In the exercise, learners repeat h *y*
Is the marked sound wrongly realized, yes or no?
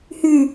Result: no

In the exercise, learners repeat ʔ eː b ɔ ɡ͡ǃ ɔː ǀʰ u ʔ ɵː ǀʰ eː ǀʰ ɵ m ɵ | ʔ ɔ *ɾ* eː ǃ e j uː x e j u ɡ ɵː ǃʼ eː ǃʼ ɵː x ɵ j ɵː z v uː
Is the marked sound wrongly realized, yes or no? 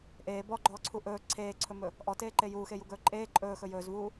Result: yes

